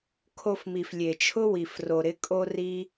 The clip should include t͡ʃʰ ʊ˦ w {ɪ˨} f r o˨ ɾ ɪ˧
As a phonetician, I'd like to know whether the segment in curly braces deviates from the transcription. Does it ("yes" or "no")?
yes